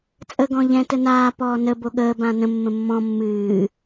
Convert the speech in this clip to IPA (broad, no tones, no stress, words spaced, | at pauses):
t͡sʼə ɡɔ̃ʎɛ̃ tənaː pɔːnə boɠəː bãnə̃ mːə̃mːɔ̃ mːɨː